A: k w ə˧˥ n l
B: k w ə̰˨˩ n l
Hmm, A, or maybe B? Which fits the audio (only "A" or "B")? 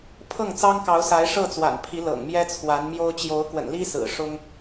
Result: B